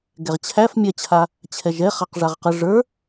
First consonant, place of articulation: velar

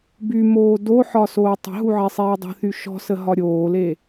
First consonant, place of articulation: labial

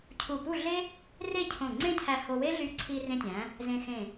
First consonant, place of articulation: palatal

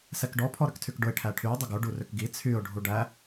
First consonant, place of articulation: alveolar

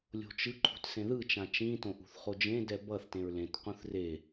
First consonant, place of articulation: alveolar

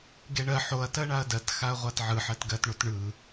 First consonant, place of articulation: velar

